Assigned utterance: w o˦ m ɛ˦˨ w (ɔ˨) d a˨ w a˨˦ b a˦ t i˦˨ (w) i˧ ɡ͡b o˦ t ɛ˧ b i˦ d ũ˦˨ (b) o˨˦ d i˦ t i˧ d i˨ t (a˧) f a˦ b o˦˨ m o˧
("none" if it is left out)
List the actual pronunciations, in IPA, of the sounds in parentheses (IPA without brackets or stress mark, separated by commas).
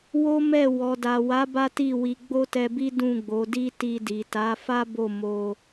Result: ɔ˨, w, ɡ͡b, a˨˦